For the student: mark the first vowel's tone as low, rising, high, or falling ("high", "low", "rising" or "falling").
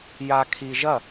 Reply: low